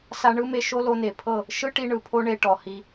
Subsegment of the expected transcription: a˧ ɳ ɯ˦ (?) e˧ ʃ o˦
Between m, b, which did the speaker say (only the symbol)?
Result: m